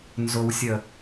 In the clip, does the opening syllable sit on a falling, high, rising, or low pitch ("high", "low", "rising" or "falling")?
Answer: low